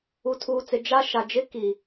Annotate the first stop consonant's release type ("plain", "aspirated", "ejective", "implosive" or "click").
aspirated